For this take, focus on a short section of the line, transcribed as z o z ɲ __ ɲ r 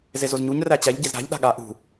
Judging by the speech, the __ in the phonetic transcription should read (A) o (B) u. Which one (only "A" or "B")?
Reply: B